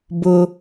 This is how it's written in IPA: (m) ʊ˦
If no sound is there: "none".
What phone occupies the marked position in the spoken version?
b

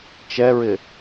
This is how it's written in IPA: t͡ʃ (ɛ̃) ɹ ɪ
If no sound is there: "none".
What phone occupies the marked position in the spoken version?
ɛ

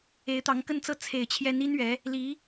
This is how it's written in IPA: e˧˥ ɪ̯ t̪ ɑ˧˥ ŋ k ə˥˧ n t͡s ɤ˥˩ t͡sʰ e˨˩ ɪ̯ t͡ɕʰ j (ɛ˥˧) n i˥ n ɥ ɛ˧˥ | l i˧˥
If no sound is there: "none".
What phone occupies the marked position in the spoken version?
ɛ˧˥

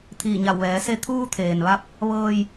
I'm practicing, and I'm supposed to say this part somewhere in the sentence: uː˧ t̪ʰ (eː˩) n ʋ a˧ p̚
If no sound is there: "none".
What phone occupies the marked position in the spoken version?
eː˩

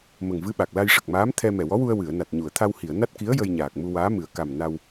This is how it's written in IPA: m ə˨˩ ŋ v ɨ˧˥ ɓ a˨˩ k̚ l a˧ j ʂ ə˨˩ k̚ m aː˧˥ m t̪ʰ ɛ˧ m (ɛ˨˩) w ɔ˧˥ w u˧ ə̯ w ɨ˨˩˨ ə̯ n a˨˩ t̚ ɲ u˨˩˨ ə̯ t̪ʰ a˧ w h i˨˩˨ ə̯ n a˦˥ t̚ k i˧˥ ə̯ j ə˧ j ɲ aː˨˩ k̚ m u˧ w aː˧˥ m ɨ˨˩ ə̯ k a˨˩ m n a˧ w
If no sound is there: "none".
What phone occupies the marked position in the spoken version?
ɛ˨˩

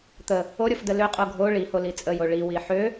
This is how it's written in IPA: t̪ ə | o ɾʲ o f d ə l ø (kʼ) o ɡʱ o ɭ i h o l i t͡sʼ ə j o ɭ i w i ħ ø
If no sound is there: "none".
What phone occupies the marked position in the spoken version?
qʼ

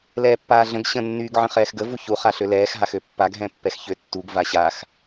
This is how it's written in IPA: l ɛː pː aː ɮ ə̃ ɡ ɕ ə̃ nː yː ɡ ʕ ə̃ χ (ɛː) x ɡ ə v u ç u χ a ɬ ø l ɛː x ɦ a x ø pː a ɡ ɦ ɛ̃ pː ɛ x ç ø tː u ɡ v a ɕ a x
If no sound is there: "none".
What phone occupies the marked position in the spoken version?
ɛː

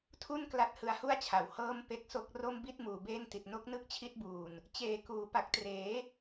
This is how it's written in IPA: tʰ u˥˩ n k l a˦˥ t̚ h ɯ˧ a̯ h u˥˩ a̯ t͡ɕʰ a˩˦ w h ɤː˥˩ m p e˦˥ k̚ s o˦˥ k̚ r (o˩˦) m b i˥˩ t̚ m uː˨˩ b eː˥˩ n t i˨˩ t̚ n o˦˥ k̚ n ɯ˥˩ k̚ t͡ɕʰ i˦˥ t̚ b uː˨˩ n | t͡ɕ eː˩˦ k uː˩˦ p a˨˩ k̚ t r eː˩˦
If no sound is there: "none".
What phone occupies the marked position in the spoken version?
o˥˩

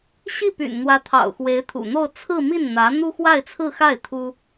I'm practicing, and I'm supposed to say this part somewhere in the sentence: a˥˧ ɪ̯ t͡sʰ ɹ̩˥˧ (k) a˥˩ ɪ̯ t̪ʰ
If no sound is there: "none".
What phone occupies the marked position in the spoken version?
x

